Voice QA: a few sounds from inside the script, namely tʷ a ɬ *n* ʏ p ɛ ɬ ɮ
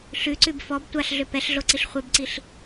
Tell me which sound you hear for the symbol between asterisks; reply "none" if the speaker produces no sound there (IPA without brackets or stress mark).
ɮ